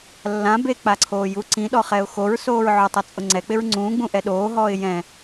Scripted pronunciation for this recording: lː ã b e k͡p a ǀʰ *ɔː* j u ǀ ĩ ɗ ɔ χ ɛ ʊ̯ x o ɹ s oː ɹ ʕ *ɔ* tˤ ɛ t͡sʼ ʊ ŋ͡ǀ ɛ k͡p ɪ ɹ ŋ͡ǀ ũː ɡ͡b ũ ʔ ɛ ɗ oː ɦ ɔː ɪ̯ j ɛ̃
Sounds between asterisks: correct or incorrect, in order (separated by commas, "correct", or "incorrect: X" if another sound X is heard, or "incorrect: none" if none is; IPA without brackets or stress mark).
incorrect: oː, incorrect: ʊ